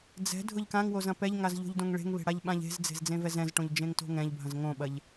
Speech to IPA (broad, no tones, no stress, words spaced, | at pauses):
d͡zɛ̤ dʱʊʎkãŋwoz ɐ̃pɛʎŋaz ʎo̤ʎdõŋɭe̤ŋβe̤ ɽaʎɓãʎe̤zd͡ze̤z d͡zẽvɛzɛ̃zʈõʎ d͡ʒẽŋto̤ŋɛ̃ʎbʱɐ̃z ŋõɓɐʎ